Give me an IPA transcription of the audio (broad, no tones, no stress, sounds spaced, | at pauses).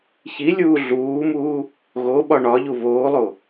ç i lʲ uː ɮ uː m uː | ɣ o ɓ ɒ ɳ ɒ ʎ u β oː lˠ o